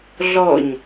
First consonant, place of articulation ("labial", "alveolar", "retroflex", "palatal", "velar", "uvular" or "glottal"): alveolar